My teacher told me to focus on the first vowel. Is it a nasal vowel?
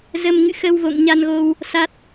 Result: no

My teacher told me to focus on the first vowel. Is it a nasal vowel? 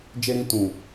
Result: no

